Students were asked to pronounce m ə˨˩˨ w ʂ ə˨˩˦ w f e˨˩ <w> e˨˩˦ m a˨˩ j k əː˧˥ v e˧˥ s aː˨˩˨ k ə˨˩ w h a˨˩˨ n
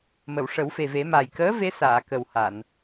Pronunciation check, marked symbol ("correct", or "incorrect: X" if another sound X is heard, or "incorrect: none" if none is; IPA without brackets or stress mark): incorrect: v